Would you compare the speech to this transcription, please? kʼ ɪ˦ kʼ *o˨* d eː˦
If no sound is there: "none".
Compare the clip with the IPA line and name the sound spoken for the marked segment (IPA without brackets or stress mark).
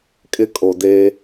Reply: o˨